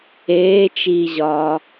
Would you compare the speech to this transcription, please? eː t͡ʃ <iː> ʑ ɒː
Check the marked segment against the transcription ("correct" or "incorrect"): correct